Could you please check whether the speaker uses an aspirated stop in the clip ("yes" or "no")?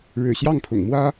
yes